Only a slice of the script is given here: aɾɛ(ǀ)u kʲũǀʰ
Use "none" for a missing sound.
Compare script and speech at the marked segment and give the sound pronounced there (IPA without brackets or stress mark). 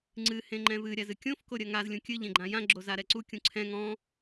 ǀ